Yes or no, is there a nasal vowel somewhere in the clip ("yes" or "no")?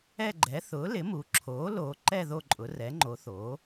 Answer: no